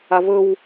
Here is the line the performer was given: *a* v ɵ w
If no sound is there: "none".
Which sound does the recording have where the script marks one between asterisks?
a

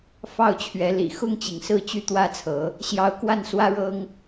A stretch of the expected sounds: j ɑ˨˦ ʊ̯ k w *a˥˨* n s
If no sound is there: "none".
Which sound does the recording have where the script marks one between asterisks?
a˥˨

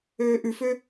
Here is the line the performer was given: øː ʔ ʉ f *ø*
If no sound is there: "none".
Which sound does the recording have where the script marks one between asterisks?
ø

